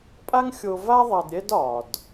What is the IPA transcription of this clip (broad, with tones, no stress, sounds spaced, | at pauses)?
pʼ a˥ ŋ xʲ o˧ v a˥ ðˤ a˧ d ɾʲ ɛ˥ d ɒ˩ d